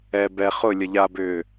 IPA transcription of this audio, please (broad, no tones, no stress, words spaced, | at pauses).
ɛ bɛ χʊ lʲʌʎabʏː